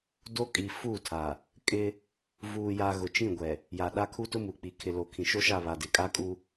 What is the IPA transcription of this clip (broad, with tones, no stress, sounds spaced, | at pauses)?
d o˦ kʼ i˨ f u˦˨ tʰ a˨ | kʼ ɪ˦ | v uː˨ j a˨ ɣ ʊ˨ t͡ʃ ĩ˦˨ ɡʷ ɛ˨ | j a˨ ɗ a˦ kʰ u˦ t ʊ˦ m u˨ k͡p i˨ kʰ ɪ˨ l o˨ kʰ ĩ˨ ʃ o˦ ʃ a˦˨ β a˨ d ɪ˨ kʼ a˦ kʼ u˦